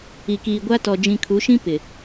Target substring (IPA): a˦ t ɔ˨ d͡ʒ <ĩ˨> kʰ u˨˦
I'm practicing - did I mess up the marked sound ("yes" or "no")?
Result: no